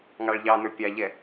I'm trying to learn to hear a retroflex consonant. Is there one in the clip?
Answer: yes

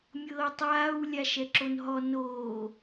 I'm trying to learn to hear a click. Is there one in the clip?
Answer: yes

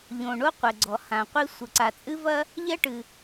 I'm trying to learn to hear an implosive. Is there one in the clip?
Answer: no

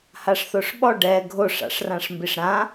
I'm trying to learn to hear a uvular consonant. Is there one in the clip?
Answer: no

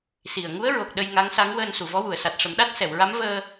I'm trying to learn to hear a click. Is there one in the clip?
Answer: no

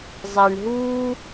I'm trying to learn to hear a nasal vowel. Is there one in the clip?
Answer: no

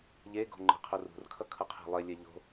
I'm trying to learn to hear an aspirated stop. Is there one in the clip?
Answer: yes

